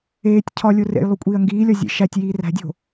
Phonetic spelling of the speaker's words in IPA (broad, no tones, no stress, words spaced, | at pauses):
eːtʲ cʰɒlʲo rḛjlˠu kʷʼiːɐ̯ŋɡiːlʲɒ zʲḛ ʃætʲjiː ræ̤dʲo̤